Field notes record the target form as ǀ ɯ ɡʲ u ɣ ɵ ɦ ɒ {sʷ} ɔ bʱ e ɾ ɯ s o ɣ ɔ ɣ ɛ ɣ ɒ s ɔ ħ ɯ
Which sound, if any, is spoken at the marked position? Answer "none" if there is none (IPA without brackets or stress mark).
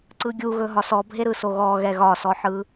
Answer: s